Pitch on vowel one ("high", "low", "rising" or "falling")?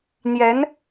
rising